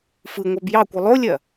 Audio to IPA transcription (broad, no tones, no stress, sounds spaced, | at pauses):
f ɯ ŋʷ a b j ɑ kʷ ɯ lˠ o lʲ ɐ